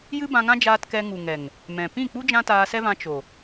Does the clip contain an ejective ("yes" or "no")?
no